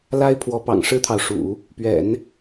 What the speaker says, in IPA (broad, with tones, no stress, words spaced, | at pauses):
la˥ɪ̯pʰwɔ˧˥pɑ̰˨˩ŋ ʂɻ̩˥t̪ʰɑ˨ʊ̯ʂṵ˨˩˦ | pɥɛ̰˨˩˦n